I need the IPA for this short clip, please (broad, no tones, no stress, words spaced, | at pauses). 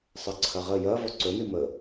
sˤɨǀʰɐʁə jɐ vɔǀɵni mə